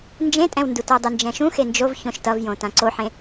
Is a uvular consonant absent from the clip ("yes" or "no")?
yes